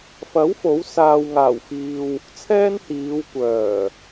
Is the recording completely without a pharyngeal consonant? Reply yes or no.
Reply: yes